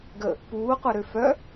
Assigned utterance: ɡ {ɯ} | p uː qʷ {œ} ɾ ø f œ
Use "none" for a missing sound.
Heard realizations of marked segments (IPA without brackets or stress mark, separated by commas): ə, ɛ